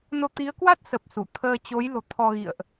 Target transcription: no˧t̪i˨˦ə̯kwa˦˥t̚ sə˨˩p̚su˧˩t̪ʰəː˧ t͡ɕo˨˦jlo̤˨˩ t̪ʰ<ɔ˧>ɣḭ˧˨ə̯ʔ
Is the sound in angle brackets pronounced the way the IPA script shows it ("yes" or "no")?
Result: yes